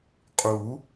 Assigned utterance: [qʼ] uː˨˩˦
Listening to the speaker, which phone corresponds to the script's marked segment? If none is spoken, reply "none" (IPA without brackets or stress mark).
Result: qʼ